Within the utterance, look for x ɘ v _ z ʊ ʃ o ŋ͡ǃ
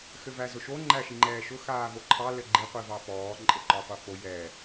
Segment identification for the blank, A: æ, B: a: A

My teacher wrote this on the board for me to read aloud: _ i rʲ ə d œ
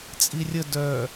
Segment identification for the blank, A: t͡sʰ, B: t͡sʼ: B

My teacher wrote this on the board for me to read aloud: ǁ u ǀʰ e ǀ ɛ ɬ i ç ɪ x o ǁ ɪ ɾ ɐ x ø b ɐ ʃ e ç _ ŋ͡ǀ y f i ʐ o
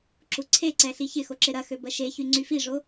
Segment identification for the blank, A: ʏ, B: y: B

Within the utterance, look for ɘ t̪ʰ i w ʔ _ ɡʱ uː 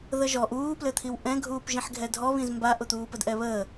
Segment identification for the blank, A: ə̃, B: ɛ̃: B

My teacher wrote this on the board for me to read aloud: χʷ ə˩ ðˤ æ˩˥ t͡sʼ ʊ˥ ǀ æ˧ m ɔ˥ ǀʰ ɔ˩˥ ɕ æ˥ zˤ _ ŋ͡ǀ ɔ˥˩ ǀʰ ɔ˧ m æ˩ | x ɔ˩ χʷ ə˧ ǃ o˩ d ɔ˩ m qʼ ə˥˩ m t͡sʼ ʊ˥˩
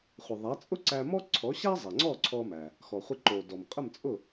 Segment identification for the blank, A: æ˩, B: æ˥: A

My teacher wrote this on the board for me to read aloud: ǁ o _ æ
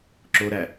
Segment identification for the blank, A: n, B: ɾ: B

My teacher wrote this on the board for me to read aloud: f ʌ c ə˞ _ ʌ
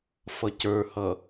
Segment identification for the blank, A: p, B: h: B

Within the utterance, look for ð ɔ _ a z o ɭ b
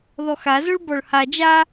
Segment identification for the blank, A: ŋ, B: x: B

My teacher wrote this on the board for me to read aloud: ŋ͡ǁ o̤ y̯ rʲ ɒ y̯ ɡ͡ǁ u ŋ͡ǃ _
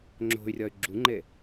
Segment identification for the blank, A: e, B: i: A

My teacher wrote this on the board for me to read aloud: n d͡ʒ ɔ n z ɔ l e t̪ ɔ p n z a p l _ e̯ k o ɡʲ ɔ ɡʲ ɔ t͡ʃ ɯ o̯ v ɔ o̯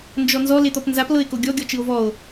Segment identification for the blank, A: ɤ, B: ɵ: A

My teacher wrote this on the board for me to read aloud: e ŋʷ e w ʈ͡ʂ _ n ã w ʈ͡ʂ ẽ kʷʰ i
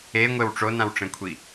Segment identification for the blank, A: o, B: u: A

